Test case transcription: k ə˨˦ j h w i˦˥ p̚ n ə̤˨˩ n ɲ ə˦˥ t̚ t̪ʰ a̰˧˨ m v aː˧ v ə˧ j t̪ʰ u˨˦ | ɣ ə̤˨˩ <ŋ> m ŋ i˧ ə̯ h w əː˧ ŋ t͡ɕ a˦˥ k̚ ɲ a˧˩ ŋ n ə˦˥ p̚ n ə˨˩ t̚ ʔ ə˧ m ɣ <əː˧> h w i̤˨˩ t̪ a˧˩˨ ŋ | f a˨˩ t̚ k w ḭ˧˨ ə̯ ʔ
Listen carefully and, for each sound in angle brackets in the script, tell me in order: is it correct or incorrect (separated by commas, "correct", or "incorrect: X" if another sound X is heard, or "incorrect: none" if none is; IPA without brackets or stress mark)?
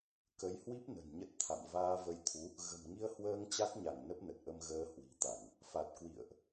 incorrect: none, correct